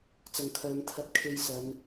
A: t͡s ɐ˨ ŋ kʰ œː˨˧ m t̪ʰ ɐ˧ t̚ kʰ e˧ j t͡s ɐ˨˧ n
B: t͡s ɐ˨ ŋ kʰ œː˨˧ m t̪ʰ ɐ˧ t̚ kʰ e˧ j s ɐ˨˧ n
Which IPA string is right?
B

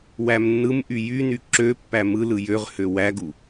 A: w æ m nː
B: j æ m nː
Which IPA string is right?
A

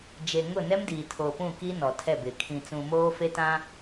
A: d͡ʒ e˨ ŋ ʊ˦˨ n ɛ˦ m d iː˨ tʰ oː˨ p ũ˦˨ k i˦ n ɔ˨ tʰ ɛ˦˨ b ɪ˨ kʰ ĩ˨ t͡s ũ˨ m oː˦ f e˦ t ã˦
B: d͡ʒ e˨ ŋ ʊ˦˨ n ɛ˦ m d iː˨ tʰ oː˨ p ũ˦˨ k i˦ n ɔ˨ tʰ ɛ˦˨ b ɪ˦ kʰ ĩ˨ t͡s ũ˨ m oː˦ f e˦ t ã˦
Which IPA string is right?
A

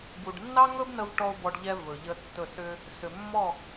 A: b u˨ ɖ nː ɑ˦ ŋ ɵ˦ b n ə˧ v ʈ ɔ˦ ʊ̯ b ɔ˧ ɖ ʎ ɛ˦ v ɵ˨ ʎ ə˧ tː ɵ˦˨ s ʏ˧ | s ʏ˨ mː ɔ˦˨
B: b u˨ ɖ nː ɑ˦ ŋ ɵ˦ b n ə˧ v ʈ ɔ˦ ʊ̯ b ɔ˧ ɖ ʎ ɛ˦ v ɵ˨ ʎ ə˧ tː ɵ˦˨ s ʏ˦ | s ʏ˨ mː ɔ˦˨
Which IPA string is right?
A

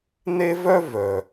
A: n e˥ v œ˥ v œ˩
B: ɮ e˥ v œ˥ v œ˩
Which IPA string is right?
A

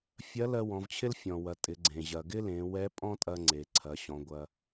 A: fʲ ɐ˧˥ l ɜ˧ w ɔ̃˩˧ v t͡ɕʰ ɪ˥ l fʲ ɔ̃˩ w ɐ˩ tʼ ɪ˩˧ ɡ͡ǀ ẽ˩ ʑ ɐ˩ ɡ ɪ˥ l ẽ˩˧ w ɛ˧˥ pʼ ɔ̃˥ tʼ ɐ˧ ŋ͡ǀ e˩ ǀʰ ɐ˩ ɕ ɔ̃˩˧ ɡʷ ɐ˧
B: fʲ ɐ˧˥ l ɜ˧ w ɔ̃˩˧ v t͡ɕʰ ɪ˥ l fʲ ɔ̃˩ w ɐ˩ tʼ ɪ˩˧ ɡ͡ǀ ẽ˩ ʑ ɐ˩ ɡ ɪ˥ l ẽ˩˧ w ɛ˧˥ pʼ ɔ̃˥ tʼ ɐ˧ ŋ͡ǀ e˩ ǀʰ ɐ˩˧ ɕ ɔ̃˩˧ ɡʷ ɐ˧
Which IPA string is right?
B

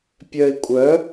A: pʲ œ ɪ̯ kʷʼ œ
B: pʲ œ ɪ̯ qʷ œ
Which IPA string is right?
A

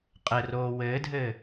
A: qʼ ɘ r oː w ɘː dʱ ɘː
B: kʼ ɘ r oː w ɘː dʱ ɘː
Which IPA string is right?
A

